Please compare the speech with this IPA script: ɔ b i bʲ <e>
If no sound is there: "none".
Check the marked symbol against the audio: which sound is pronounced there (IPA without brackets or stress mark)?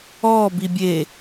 e